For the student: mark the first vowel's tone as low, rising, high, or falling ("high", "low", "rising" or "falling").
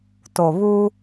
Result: low